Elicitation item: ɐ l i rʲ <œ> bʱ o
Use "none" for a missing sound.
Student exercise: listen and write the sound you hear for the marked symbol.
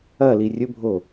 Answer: ɵ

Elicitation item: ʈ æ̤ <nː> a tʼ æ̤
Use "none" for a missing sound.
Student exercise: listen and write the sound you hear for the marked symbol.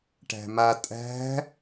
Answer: m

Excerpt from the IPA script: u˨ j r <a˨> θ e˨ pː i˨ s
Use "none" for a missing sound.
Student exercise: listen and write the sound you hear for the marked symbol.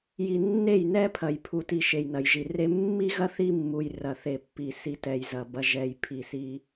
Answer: ɐ˨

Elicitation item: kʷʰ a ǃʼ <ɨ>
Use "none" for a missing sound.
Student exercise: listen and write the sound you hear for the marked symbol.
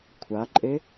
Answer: e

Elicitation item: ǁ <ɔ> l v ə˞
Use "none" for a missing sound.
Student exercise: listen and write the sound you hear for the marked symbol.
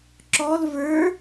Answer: ɔ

